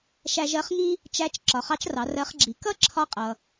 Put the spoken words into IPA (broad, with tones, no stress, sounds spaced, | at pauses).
ʃ æ˧ ʒ ɜ˧˥ χ ŋ i˥ | t͡ʃ æ˧˥ t͡ʃ ǁ ɒ˩ χ ɑ˧˥ t͡ʃ r ɑ˩˧ r ɜ˧˥ χ ɡ͡ǁ i˩˧ k ʌ˥ ǁʰ ɒ˥ qʼ ʌ˩